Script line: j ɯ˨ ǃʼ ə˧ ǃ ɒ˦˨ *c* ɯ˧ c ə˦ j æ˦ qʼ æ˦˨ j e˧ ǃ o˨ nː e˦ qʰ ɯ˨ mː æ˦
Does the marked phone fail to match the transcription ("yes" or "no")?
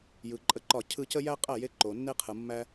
yes